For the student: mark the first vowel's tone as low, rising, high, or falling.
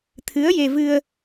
rising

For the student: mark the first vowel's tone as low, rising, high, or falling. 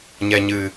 low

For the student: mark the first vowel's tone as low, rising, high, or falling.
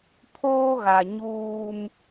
high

